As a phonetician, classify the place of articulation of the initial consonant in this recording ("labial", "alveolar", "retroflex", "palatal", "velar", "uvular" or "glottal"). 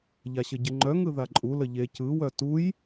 palatal